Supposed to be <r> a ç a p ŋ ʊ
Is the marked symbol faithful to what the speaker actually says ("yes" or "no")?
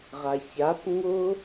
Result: no